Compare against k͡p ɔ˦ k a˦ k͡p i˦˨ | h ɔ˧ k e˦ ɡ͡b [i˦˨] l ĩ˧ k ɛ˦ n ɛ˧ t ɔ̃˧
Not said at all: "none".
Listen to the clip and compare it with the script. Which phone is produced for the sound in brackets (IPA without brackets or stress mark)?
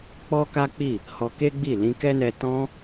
i˦˨